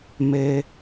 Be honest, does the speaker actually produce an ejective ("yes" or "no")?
no